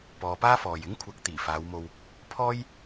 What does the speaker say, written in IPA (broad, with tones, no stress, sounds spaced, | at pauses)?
p ɔː˨˧ p aː˥ f ɔː˨ j ɪ˥ ŋ kʷʰ ɐ˨˥ k̚ t̪ iː˨˩ f aː˨˧ w m o˧ w | pʰ ɔː˥ j